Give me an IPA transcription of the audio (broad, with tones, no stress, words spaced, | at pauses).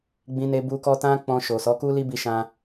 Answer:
ɡ͡bĩ˦ne˦bu˦kɔ˦ tã˦k͡pɔ̃˧ ʃo˨sɔ˨˦ku˦ li˦bi˧ʃã˧